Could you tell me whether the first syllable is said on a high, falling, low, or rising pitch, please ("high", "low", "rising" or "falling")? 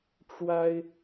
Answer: high